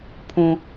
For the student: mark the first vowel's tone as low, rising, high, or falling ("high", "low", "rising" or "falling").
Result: high